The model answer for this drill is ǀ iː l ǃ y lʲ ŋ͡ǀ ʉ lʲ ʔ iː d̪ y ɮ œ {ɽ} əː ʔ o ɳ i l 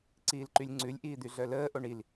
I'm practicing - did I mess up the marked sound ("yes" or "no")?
yes